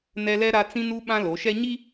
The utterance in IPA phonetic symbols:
n ɛ˦ l ɛ˦ ɾ a˦ t͡s ĩ˦ n u˦ ɓ ã˦ l o˨˦ ʃ ɛ˦ ɲ i˦

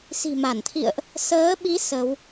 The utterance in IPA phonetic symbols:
s i̤˨˩ m a˧˩ n t̪ʰ ḭ˧˨ ə̯ ʔ | s əː˨˦ ɓ i˨˦ s ə˨˦ w

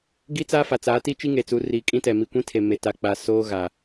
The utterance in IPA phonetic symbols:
ɡ i˦ t͡s a˦ f a˨ t͡s a˨˦ t i˦ t͡ʃ i˦ ŋ e˨ t͡s u˨˦ r iː˨ kʼ ĩ˦ t ɛ˨ m i˨ kʷ ĩ˦ tʰ e˨ m e˨ t a˨ k͡p a˨ s oː˦ ɣ a˨

